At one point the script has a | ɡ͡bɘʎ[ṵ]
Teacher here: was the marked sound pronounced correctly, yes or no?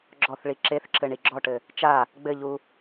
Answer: no